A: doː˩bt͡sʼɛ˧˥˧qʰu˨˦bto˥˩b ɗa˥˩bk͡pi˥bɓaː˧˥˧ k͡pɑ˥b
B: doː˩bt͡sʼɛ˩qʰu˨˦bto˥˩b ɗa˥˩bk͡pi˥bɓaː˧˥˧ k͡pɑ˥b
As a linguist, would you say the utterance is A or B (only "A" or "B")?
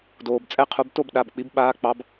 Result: A